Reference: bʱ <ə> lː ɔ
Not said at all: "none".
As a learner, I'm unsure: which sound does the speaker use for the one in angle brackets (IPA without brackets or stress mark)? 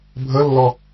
ə